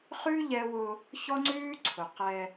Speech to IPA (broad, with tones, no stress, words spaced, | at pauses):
χʉ˦ ʎɛ˦wʊ˦ | çɔ˦ŋ͡ǀʉː˦ ǀʰʊ˨qɛ˦